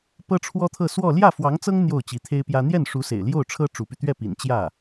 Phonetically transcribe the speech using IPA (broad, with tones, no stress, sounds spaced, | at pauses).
p ɤ˥ ʈ͡ʂʰ w ɔ˥ t̪ʰ ɤ˥˧ s w ɔ˥˧ l j ä˥˩ f w ɑ˧˥ ŋ t͡s ɤ˥ ŋ n̪ j o˥˩ ʊ̯ t͡ɕ i˧˥ t̪ʰ e˥ ɪ̯ p j ä˥ n̪ j ɛ˥˩ n ʂ u˧˥ s ḛ˨˩ ɪ̯ l j o˥˩ ʊ̯ ʈ͡ʂʰ ɤ˥ ʈ͡ʂ u˧˥ p y˧ t̪ ɥ ɛ˥˩ p ḭ˨˩ n t͡ɕ j ä˥˩